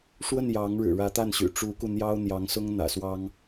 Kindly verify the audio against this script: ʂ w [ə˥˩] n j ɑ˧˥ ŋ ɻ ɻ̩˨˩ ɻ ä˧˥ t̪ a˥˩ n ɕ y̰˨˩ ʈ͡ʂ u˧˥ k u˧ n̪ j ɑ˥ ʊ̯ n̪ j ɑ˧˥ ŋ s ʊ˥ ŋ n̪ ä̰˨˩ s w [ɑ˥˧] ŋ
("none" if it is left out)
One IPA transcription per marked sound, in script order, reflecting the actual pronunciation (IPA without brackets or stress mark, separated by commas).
ə˥˩, ɑ˥